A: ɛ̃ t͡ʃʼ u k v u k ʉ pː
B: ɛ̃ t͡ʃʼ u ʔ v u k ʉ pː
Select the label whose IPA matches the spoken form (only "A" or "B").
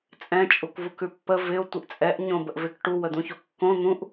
A